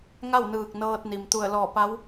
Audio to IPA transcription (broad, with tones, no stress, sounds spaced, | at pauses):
ŋ a˥˨ w n ɯː˧˩ k̚ n ɤː˧ t̚ n i˩ m t̪ u˧˩ ə̯ l ɔː˧˩ p a˧˥ w